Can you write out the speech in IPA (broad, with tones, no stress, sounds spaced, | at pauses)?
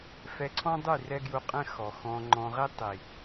f ɛ˧ ǀʰ ɔ̃˦ dˤ y˦˨ r ɛ˦ ɡ j u˧ qʼ ɛ̃˦ x ɔ˨ x ɔ̃˧ ŋ͡ǃ ɔ̃˧ ʁ i˦ tˤ i˨